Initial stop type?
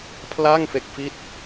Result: aspirated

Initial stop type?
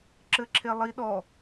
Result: click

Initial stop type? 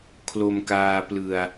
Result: aspirated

